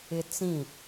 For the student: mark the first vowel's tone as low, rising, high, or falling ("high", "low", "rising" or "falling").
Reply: high